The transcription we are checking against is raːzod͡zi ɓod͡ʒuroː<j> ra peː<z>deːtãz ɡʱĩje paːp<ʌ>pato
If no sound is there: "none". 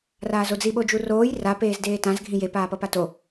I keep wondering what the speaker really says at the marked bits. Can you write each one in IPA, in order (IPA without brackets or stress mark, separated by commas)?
j, z, ʌ